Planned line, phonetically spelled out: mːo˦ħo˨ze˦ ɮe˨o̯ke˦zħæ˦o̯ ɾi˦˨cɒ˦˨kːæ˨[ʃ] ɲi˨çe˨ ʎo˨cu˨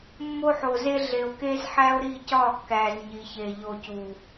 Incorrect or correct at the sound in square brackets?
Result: incorrect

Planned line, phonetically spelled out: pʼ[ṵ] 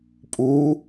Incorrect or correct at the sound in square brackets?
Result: incorrect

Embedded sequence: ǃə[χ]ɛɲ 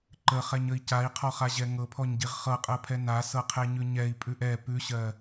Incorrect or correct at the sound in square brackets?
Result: correct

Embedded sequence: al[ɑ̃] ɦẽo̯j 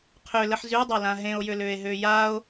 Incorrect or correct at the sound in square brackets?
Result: incorrect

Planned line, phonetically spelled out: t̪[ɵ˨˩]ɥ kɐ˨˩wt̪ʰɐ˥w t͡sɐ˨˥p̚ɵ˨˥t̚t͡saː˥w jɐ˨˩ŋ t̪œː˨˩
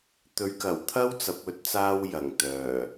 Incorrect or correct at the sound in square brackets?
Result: incorrect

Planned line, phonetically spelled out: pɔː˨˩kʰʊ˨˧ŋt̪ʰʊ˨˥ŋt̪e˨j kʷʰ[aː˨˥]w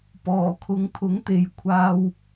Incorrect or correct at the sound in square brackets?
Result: incorrect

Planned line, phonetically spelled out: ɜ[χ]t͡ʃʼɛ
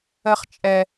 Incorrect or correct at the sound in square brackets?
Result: correct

